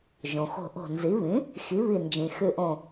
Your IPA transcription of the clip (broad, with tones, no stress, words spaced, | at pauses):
ʒõ˩xo̤˧˩ʔo̤˧˩nzi˩˥ βĩ˩˥ | xi˩˥βi˧˩ nd͡ʒĩ˩xʉ˧˩ʔõ˧˩